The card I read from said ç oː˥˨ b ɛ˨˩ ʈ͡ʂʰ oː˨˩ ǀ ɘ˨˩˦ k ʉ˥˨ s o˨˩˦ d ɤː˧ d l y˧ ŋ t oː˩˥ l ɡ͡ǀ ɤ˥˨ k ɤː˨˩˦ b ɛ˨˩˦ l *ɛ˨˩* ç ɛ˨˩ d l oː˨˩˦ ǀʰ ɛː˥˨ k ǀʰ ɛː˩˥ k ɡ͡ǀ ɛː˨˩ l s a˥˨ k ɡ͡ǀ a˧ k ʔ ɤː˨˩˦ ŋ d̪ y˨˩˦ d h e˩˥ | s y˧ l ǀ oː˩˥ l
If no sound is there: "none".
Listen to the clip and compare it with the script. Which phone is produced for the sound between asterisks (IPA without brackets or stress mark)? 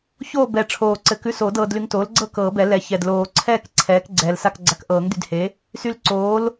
ɛ˨˩˦